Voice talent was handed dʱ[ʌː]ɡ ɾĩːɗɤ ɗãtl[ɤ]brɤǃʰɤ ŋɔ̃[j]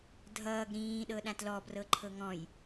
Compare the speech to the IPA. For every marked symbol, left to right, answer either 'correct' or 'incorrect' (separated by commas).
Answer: correct, incorrect, correct